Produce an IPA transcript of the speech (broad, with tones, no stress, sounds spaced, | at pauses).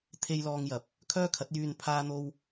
t̪ʰ e˧ j l ɔː˧ ŋ j ɐ˨˥ p̚ | kʰ œː˥ kʰ ɐ˨˥ t̚ j yː˧ n pʰ aː˥ n̪ o˥ w